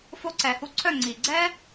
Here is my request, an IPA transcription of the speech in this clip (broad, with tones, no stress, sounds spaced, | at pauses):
f o˧ ǀ ɛ˨ h u˧ ǀʰ œ˦˨ ŋ͡ǀ i˨ ɡ͡ǀ ɛ˦